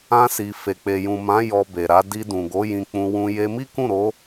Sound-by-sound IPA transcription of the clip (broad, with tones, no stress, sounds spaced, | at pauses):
ã˧ s i˨ f e˨ k͡p e˨ j ũ˨ m ã˨˦ j ɔ˧ b e˨ ɾ a˨˦ d i˧ d ũ˨ ɡ o˨˦ j ĩ˧ k͡p ũ˧ w ũ˧ j e˧ m i˦ k ũ˦˨ ɾ o˨˦